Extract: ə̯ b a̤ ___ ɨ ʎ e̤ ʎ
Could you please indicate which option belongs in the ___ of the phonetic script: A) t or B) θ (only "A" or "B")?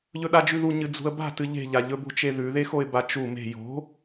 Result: A